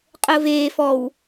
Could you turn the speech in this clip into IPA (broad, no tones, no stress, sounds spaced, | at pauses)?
qʼ əː v eː f ɔ w